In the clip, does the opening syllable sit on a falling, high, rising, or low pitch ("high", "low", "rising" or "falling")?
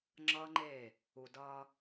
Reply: high